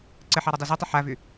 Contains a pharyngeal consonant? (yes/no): yes